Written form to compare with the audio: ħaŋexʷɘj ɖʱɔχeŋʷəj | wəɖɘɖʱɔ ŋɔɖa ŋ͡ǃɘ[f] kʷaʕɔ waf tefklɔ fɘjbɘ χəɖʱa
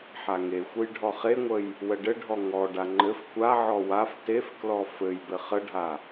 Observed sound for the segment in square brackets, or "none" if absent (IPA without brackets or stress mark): f